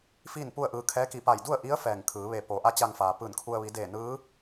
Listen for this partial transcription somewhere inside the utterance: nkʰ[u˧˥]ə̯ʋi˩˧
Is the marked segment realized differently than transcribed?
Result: yes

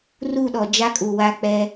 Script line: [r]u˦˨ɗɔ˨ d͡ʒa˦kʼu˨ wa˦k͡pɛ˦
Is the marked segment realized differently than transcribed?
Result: no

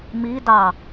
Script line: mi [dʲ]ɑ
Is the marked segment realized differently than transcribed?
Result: yes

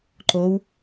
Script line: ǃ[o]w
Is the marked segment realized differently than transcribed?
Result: no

